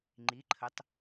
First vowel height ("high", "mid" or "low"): high